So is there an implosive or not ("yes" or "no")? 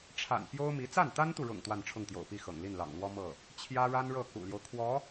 no